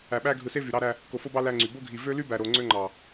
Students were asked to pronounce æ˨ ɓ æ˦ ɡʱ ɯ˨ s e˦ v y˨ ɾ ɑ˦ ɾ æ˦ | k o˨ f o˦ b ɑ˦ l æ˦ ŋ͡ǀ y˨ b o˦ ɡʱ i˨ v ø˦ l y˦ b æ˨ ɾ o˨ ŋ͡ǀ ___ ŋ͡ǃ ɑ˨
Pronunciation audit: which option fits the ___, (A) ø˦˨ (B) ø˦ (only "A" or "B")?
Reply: B